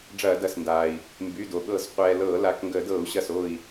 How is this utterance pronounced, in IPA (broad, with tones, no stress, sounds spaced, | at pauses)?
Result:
ɖ͡ʐ ɐː˧˩˧ d ɐ˩˧˩ s n d aː˩ i̯ | m b y˩˧˩ d o˩ ɠ ɤ˧˩˧ z qʷ ɛː˩ l ɤː˧˩˧ l a˩˧˩ k ŋ ɡ əː˧˩˧ d ɤː˧˩˧ u̯ ɕ ɐ˧˩ s o˧˩ i̯